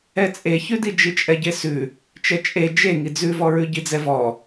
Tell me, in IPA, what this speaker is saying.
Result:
ɛ t͡sʼ e ç ʉ d i d͡ʒ i t͡ʃʼ ɛ ɟ e s ʉ | t͡ʃ ɛ t͡ʃʼ e d͡ʒ e ŋ i d͡z ʉ v ɔ ɹ ʉ ɟ i d͡z ɛ v ɔ

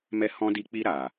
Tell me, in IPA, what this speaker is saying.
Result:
m ɛ˦ h ɔ̃˦ d i˧ k͡p i˧ ɾ a˨

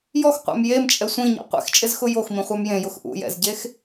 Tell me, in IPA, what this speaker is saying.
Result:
j ɔ x qʷ ɛ̰ m j e m t͡ʃʼ ɛ sʷ ĩ ɲ ɛ̰ qʷ ḛ x t͡ʃʼ ɪ z x ʊ j o x m ĩ χʷ a m j ẽ j ʊ x ʔ ṵ j ɛ̰ z ɟ e x

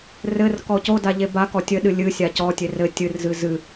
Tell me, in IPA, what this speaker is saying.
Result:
r ɘ r k ɔ c o d a ʎ e b a k ɔ tʲ ɘ ɗ ɨ lʲ ɨ sʲ a c ɔ tʲ e r ɘ tʲ ɨ r z ɨ z ɨ

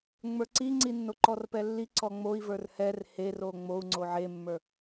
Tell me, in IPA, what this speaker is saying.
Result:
ŋ͡m ə˞ ǀ i ŋ͡ǀ i nː o ǃ ɔ r p ɛ lː i ǀ ɔ ŋ͡m o i̯ v ə˞ r h ɛ r h e r o ŋ͡m o u̯ ŋ͡ǀ o ʕ e mː ə˞

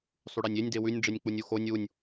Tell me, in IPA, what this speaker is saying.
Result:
sˤ ʉ ɽ ɛ nʲ e nʲ d e w ʉ nʲ ɖ͡ʐ e nʲ k͡p u nʲ u x o nʲ u nʲ

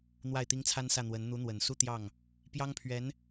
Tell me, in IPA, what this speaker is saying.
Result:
n̪ w a˥˩ ɪ̯ t̪ i˥ ŋ t͡sʰ a˥ n s ä˥˩ n̪ w ə˧˥ n n̪ u˧˥ n̪ w ə˨˩ n s u˥˧ t̪ j ɑ˥˩ ŋ | p j ɑ˥ ŋ pʰ ɥ ɛ˧˥ n

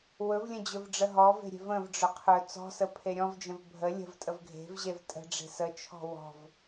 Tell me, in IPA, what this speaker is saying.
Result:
w ɵ v lʲ ə̃ d͡ʑ ɵ v ɖ͡ʐ ə ɦ ɔ v e̤ ɾʲ e̤ v ə̃ v ɖ͡ʐ ɵ qʰ ɵ t͡s ɔ̤ s ə pʰ e ɾʲ ɔ̃ v d͡ʒ ə̃ v bʱ ə lʲ ə̤ v tʼ ə v ɡʱ e̤ v ʑ e v tʼ ə̤ ɖ͡ʐ e̤ s ə t͡ʃʰ ɔ̤ w ɔ̤ v

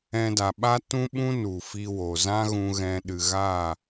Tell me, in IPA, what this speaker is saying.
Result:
ɛ̃˧ d a˨ ɓ a˦ t ũ˦ ɓ ũ˦ n u˨ f i˧ w o˨ z ã˦ ɣ ũ˧ ɣ ɛ̃˧ ɗ ɨ˨ ɣ a˦˨

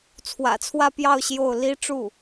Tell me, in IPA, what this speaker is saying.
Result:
t͡sʰ w ä̰˨˩ t͡sʰ w ä˥˧ p j ɑ˥˧ ʊ̯ ɕ j o˥˩ ʊ̯ l i˥ ʈ͡ʂ u˥˩

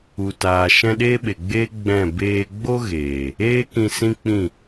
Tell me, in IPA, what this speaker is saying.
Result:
u˨ t aː˨ ʃ ɛ̃˧ ɗ eː˦ ɓ e˨ ɡ͡b eː˦ ɡ͡b ɛ̃˦˨ b eː˧ ɡ͡b o˦ ɣ eː˨ | eː˦ k ĩ˧ s ĩ˦ k͡p ĩ˦˨

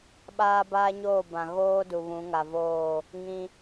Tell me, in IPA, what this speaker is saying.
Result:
ɓ aː˦ b aː˦ ɲ oː˦˨ b ã˨ ɣ oː˦ d u˨ β ũ˨˦ ŋ a˨ v oː˦˨ | ŋ ĩ˦

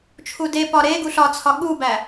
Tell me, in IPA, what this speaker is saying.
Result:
t͡ʃʰ u d e p ɒ ɾ e ɡ u ɬ ɒ t͡sʰ ɒ ɠ u b æ

